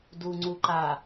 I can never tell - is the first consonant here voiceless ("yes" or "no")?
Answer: no